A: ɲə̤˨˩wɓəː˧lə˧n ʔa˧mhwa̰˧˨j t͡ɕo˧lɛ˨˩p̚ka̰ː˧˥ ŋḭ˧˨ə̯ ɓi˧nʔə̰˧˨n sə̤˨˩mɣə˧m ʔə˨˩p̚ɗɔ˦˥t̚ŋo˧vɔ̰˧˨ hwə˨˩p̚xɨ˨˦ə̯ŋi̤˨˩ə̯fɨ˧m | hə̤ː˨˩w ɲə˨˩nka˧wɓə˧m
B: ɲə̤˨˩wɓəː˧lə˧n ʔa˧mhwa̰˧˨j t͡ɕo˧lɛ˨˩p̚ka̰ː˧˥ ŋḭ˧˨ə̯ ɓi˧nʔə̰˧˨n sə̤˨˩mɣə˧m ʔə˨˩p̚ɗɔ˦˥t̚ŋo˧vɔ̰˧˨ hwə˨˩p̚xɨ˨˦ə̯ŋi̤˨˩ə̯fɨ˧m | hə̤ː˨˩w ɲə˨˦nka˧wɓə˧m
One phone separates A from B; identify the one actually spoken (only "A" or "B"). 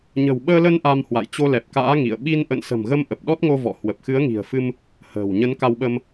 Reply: B